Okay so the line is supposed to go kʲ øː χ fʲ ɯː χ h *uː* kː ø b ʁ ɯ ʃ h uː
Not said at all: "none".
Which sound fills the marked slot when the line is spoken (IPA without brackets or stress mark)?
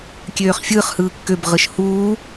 ɯː